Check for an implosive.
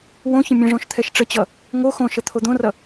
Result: absent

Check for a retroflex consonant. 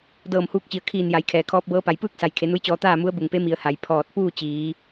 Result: absent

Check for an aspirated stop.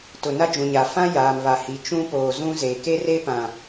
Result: absent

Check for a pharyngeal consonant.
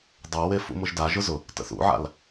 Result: present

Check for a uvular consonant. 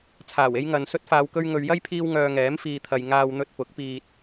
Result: absent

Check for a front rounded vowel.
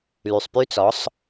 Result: present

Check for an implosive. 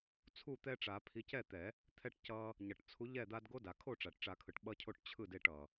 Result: present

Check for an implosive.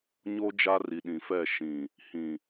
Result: present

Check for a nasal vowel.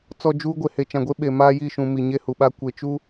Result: present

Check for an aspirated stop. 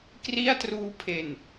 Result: present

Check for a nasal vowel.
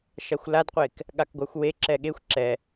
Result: absent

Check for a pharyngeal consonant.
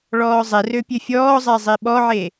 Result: present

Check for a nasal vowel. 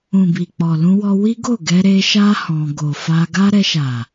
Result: present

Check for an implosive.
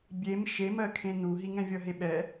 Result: present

